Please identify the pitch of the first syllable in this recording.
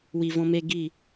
low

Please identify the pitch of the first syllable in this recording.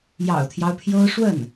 low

